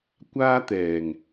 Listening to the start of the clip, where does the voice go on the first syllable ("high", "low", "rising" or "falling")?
high